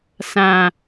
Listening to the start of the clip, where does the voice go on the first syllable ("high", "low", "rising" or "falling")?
low